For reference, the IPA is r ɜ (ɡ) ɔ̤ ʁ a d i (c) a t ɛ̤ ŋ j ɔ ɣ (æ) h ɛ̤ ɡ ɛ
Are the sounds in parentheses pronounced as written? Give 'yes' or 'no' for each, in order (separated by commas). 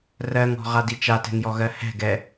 no, no, no